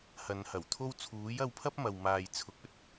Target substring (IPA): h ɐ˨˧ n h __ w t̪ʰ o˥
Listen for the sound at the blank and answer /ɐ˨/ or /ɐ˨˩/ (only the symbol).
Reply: ɐ˨˩